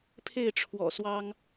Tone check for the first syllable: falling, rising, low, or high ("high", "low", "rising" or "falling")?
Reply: falling